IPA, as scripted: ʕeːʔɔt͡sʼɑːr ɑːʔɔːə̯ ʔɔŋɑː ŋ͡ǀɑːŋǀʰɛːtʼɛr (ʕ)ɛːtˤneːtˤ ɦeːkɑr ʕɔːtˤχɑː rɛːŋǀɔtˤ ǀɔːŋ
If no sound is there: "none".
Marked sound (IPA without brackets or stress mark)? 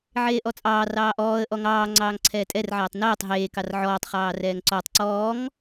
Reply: ʕ